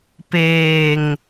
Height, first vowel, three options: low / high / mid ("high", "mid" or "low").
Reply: mid